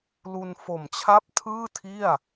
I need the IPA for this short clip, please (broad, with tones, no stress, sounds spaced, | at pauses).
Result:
l u˧ n f o˨˩ m t͡ɕʰ a˥˩ p̚ tʰ ɯː˥˩ tʰ i˥˩ a̯